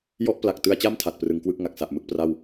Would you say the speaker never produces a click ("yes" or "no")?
yes